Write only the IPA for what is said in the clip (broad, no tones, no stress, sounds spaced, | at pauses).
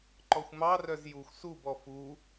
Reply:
ǃ ɔ xʷ m ɑ r œ z j u xʷ s u b ɔ f u